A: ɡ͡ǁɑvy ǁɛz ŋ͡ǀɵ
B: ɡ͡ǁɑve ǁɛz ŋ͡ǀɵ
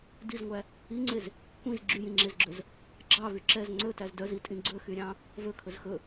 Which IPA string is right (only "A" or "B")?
A